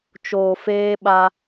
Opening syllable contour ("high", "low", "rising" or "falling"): low